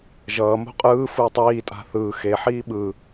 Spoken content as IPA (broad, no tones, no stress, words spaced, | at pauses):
ʒʌːmo̤ qʼɯː fɯtˤiːtʼa̤ θɯː xeħiː ɓɯ